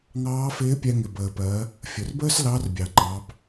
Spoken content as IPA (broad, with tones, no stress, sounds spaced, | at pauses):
ŋ ɑː˧˥ f ɪː˧˥ pʲ ɛ˧ ŋ ɪ˩ b əː˩ p ɜ˩˧ | fʲ ʊ˩ r b əː˥ s l ɑ˧˥ r bʲ ɑ˩ ŋ͡ǃ ɑ˩˧ b